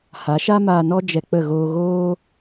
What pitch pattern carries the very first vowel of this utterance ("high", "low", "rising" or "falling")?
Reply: rising